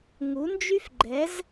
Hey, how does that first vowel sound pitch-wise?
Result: rising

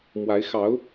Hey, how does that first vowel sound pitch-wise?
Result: rising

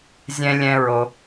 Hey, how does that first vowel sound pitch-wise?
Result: high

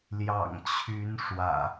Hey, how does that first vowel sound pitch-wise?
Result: low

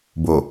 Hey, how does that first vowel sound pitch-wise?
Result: low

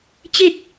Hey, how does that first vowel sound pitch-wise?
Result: falling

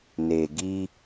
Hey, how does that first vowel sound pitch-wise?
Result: low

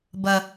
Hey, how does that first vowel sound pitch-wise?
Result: low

